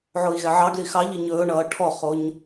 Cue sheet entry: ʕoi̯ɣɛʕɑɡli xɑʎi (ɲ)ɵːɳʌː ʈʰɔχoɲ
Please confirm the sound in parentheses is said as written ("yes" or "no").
yes